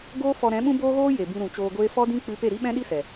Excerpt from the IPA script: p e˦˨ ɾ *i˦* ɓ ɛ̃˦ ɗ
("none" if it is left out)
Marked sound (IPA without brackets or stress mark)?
i˦